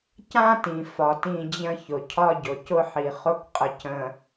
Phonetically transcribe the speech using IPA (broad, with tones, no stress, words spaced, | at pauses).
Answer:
cã˦tĩ˨ fɒ˨tĩ˦˨d͡ʑə̃˦ çʊ˨cʰɒ˦ɟʊ˨ cʊ˦ħi˨ χʊ˦kqʼə˨c ə̃˨